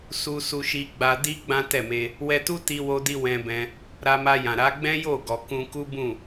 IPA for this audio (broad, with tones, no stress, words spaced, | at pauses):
su˧su˧ʃi˧ ɡ͡ba˧di˦ ɡ͡bã˦tɛ˦˨me˧ | wɛ˧tu˦ ti˧wo˧di˧ wɛ̃˧bɛ̃˧ | ɾa˧ma˧jã˨ɾa˨˦ ɡ͡bɛ̃˦jo˦˨ɡɔ˨ kũ˧ku˦bũ˦˨